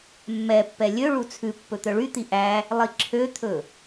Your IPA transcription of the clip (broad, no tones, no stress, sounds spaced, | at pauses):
mː ɛ pː ɛ lʲ ø ɭ u t͡sʰ ʉ pː ɵ t̪ œ ɭ y t̪ i ʔ æ | lˠ i ǁʰ ø t̪ʰ ɵ